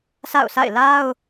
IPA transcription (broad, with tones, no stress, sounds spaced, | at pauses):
sʰ a̰˦˨ ʊ̯ sʰ a̰˦˨ ɪ̯ l a˦ ʊ̯